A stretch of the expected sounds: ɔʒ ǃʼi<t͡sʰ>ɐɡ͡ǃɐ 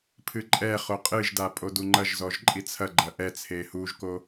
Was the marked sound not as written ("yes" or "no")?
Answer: no